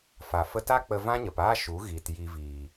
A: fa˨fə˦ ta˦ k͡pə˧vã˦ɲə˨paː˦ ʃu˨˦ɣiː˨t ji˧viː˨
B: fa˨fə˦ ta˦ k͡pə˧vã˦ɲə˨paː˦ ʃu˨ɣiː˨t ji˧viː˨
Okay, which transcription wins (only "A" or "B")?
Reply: A